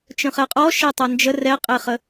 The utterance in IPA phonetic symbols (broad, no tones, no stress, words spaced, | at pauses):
t͡ʃə̃χɛqʼɔ ʃɛtˤand͡ʒə rɛqʼeχə